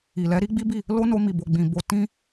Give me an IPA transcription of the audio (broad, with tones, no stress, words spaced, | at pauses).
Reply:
i˨ lɛ˨˦ɾi˦ɡ͡bi˦bi˦˨ | lo˦no˧mi˨bo˨ ɡ͡bĩ˨bo˧ tĩ˦